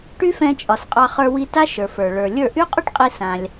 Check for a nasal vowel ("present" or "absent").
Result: present